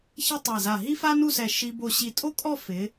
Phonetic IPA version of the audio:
ç e˥ tˤ a˧˩ z a˧˩ ɦ i˥ f a˥ n u˥˧ s ɛ˧˩ ʃ i˧ b o˧˩ ɕ i˧˩ tʼ o˥ kʼ ɔ˥˧ f ɪ˩˧

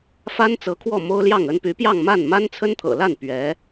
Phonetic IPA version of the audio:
f a˥ n t͡s ɤ˧˥ kʰ w ɔ˥˩ m o˥ ʊ̯ l j ɑ˥˩ ŋ ə˥ n p y˧˥ p j ɑ˥˧ ŋ m a˥˩ n m a˥ n t͡sʰ ə˥ n t̪ʰ ɤ̰˨˩ l a˥˩ n p ɥ ɛ˧˥

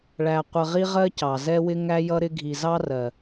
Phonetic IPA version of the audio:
ɭ æ˧ qʷ ə˧ ʁ i˦ ʁ ɜ˦ c ɑ˨ z ɛ˦ w ɪ˦ ŋ æ˦ j ʌ˦ ɾ ɪ˦ ɡʱ i˧ z ɑ˦ r ɜ˨

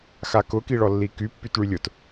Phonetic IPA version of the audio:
x a k ʊ k i ɭ ɔ lː i k y pː y t ɭ y lʲ ʊ t

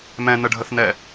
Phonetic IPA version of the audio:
m ɛ̃ n ə ɖʱ ə θ n ɛ

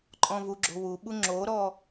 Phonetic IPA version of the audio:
ǃʼ ɔ̃ v u ɡ͡ǁ o̤ w u ɓ u ŋ͡ǁ o ɾ ɔ

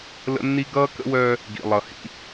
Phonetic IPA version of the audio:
l ə̰˦ nː i˦ ɡ ʌː˦ k ə̰˦ w œː˦ | ɡ ḭ˨ lˠ ʌ˨ h ḭ˦

